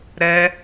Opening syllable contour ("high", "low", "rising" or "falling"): high